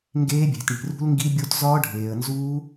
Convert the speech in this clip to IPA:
ŋ ɡ eː˦˥ bʲ æ̤˨ t ɳ i̤˨ r ṳ˦˥ l ŋ ɡ i˦˥ bʲ o˦˥ t z ɒː˦˥ ɖʱ eː˨ ə̯ n z uː˦˥

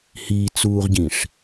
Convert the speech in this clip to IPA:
h iː t͡s uː ʁ ɟ ĩ ʂ

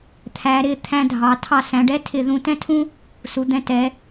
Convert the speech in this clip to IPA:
t̪ʰ æ˩˧ ɾ ɪ˧˩ t̪ʰ æ̃˧ dʱ ɑ˩˧ tʰ ɑ˧˩ s æ̃˩˧ ɖ ɛ˥˧ tʰ ɪ˧˩ ð ũ˧˩ t ɛ̃˥ tʰ ũ˥ | s u˩˧ d̪ ɛ̃˧ t ɛ˩˧

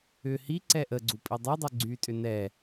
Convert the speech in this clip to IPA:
ʏ h i ǀ ɛ ʔ ə ɡ͡ǀ u pʼ i dˤ i dˤ u ɡ͡ǀ y tʼ ʏ n ɛ

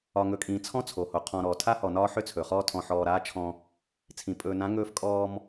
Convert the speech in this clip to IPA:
ɒ˨ ŋ ɵ˨ kʼ ĩː˨ t͡sʰ ɔ̃˦ t͡sʰ o˨ h o˨ qʰ ɔ̃˨ ɾ ɔː˨ tʰ a˦ h ɔ˨ n ɒː˦ ħ ʏ˦ t͡sʰ ɵ˨ χ ɔː˦ tʰ ɔ̃˨ ħ ɔː˨ ɾ aː˦ t͡ʃʰ ɔ̃˦ | t͡sʰ ĩ˨ pʼ ɵː˨ n ã˨˦ ŋ ɵː˦ f kʼ ɔː˦ m

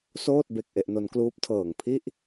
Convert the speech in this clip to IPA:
s oː˥˩ t̚ b e˨˩ k̚ ʔ e˥˩ ʔ n o˦˥ n k l uː˦˥ p̚ tʰ ɤː˨˩ ŋ pʰ i˥˩ ʔ

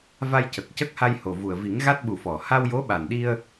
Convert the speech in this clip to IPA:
v a˧ j c ə˨˩ k̚ c ə˦˥ k̚ h a˧ j h o˨˩ v u˨˩ ə̯ v i˨˩˦ ŋ ɣ a˦˥ t̚ ɓ u˨˩ f ɔ˨˩˨ h a˧ w j o˧˥ ɓ a˨˩ n ɗ i˧ ə̯

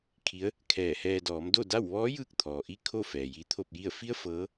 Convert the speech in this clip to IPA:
kʰ i˧˥ ə̯ | kʰ ɛː˧˩ h ɛː˧ d ɔː˩˧ m d o˥˨ d a˥˨ w ʋ ɔː˧˥ j ɯː˧ k̚ t̪ʰ ɔː˩ ʔ i˥˨ kʰ o˥˨ f ɛː˩ j i˧˥ t̪ʰ o˥˨ p̚ j i˥˨ ə̯ f i˧˥ ə̯ f ɤː˧˥

